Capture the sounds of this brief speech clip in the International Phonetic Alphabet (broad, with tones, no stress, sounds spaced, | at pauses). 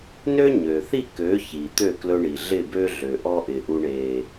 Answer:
n ø˦ ɲ ø˨ θ i˦˨ k ø˨˦ ç i˨ t̪ ø˦˨ k l ɵ˧ ɳ i˨ ɮ ɪ˦˨ b ø˦ ɮ ø˨ ʔ ɔ˦ ʔ ɪ˨ ʔ u˧ ɳ e˨